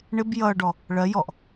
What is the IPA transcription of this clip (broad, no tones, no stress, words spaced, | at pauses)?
ɳɪb jʌːɖɔ | ɭɜ jɔʔ